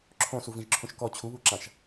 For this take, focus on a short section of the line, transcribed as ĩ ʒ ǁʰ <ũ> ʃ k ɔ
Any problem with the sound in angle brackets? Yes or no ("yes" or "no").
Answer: no